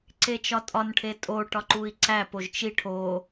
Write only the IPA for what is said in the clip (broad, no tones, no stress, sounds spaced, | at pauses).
ǀ e t͡ʃ ɒ tʼ ɒ n ʈʰ e tʼ o ʈ ɒ ǃ u i̯ ǀ æ p o ʒ t͡ʃ i ʈʰ o